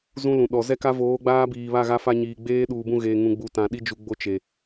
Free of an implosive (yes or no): no